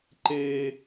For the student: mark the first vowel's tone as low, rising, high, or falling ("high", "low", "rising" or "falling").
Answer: high